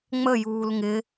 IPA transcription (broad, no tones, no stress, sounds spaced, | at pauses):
ŋ͡m ə j uː l ŋ ɪ